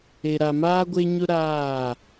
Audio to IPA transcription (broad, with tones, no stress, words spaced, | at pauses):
e˨ɾa˨maː˦ ɡʷe˦ɲʊ˦ ɾaː˦˨